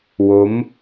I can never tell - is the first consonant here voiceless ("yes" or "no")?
no